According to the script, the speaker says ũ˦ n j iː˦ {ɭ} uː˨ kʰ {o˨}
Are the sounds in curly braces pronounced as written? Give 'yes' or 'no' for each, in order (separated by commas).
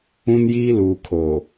no, yes